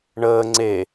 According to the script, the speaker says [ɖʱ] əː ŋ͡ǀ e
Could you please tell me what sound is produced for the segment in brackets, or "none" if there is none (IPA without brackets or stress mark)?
ɳ